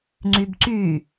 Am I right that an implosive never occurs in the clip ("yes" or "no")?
yes